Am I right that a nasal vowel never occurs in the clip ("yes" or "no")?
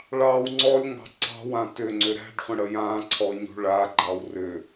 no